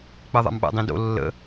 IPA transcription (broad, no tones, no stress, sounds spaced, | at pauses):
k͡p ɜ ðˤ a̰ m ɓ a̰ dˤ ĩ d o̰ lː ə̰